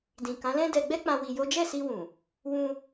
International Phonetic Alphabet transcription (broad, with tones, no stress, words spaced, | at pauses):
dĩ˨kã˨˦lɛ̃˦ dɛ˧ɡ͡bɛ˦k͡pã˧ wi˧jo˦ d͡ʒɛ˦˨si˧wũ˨ | wũ˧